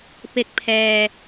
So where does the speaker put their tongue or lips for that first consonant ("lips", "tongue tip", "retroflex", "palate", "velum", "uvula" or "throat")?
lips